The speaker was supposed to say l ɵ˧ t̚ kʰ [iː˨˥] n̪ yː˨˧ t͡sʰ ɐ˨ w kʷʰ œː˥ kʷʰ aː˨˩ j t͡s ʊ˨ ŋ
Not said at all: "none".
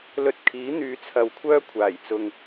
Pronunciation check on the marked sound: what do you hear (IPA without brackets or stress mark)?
iː˨˥